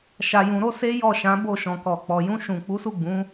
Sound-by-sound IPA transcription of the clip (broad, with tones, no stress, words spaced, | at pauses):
ʃa˧jũ˧ɾo˦ se˦jɔ˦˨ʃã˨˦ bo˦˨ʃɔ̃˨kɔ˨k͡pɔ˨ jũ˧ʃũ˨ k͡pu˨˦su˦˨ ɡ͡bũ˨˦